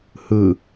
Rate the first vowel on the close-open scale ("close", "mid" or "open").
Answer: close